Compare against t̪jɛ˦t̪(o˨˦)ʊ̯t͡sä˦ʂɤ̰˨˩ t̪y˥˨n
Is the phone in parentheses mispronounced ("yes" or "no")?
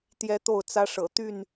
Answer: yes